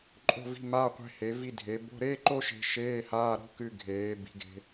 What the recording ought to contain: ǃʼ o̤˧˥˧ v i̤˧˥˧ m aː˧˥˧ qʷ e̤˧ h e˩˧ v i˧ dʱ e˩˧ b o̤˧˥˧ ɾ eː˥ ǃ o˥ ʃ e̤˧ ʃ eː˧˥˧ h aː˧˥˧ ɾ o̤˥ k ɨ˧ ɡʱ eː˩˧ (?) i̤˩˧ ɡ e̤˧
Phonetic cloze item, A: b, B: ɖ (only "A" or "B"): A